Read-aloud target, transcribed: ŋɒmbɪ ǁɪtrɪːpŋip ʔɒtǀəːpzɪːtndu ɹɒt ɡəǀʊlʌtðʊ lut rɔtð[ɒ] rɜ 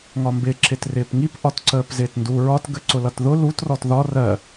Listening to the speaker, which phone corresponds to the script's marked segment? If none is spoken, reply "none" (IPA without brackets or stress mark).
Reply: ɒ